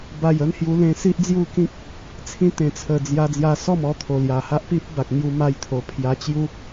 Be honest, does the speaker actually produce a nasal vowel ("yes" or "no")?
yes